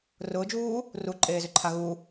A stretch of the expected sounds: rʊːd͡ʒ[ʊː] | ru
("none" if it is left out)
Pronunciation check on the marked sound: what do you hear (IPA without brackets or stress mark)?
uː